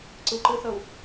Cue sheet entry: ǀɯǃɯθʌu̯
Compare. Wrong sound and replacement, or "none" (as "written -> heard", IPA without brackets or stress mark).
none